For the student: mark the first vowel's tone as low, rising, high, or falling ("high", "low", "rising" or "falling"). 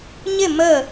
falling